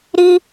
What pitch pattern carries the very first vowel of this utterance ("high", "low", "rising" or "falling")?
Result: high